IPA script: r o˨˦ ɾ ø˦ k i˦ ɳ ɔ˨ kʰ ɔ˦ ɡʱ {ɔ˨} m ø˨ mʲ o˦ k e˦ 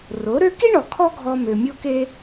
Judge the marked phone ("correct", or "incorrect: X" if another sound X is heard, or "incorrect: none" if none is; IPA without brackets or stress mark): incorrect: ɔ˧